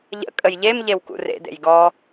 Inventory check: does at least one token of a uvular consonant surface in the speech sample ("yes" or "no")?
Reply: no